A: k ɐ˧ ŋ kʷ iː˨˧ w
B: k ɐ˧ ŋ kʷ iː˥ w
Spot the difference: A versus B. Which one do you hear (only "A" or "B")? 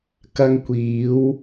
A